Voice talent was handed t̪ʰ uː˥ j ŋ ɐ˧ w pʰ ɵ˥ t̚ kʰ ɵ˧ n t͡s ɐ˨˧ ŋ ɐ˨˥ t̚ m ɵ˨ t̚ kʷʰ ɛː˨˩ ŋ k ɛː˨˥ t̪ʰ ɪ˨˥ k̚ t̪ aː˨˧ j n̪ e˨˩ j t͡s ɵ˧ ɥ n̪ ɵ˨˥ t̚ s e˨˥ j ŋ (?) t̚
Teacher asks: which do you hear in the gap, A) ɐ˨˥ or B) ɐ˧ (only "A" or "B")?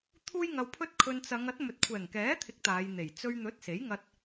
B